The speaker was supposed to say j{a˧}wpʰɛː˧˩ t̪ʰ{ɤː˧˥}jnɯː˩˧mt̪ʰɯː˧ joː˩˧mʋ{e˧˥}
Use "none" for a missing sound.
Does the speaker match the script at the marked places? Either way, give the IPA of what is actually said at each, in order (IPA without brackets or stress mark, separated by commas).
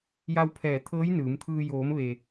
a˧, ɤː˧˥, e˩